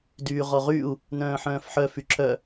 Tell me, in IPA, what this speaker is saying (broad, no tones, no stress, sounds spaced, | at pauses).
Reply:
d yː ʁ ɔ ʁ y u̯ | n œ̃ː ħ œ̃ː f ħ œ f y ǁ œ